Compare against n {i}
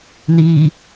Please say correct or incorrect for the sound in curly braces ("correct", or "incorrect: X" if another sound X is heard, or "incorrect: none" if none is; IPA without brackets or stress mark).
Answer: incorrect: iː